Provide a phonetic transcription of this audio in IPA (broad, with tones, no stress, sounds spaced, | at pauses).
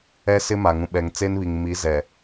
ɛ˦ s ɪ˦ m a˨ ŋ ũ˨ ɓ ɛ˨ ŋ t͡s e˦ n β i˨ ŋ m i˨˦ z ɛ˨